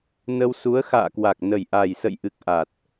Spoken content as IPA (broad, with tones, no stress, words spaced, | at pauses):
nə˧wsu˨˦ə̯ xa̰ː˧˨kwa˨˩k̚nə˨˩jʔa˨˩j sə̰˧˨jʔɨ˨˩k̚ ʔa˨˩t̚